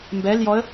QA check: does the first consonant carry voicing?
yes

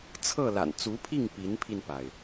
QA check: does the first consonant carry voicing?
no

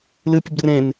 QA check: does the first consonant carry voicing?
yes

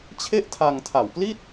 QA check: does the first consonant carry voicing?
no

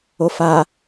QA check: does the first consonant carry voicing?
no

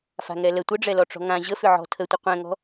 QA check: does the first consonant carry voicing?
no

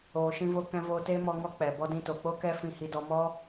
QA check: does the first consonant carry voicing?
no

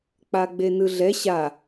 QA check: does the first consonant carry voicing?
no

